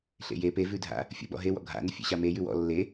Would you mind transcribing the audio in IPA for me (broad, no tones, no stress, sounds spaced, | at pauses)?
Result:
ɬ ḛ j e p e v ʉ dʱ a̰ | fʲ ə̰ ɓ ɔ̰ ɦ e w ɔ̰ ɡʱ a̰ n ə fʲ ḛ ɕ a m e j ʉ w ɔ̰ lː e